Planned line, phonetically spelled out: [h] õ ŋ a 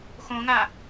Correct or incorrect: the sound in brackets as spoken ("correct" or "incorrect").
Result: incorrect